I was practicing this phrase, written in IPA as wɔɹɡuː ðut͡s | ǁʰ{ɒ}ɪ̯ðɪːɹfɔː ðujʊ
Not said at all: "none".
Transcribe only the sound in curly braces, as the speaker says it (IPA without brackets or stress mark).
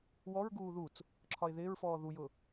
ɒ